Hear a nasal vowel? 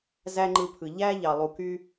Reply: no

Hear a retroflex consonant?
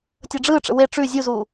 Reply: yes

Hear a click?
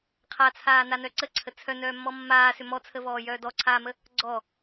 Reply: yes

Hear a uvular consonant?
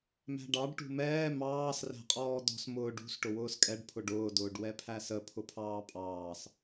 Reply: yes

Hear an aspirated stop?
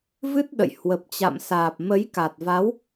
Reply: no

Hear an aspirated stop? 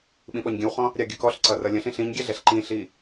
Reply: no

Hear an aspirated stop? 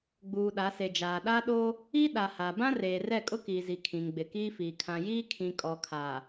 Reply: yes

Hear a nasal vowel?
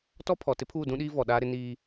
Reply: yes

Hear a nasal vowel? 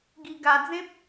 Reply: yes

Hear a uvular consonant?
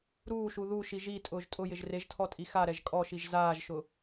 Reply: no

